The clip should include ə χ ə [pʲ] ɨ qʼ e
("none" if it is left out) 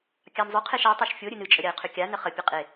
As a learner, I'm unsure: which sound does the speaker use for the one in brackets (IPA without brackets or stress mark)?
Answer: pʲ